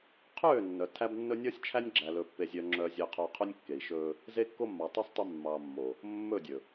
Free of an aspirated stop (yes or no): no